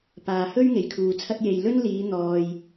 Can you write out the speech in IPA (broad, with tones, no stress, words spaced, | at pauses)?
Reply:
paː˨hɵ˥ɥ ŋe˨˩jkʰuː˨t͡sʰɐ˥t̚ je˨j lɵ˥nliː˨˧ n̪ɔː˨j